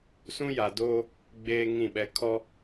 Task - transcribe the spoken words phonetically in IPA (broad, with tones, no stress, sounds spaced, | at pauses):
s ũ˦ j a˨ d oː˦ | ɡ͡b eː˦ ŋ ĩ˦˨ ɓ ɛ˦ kʰ ɔ˦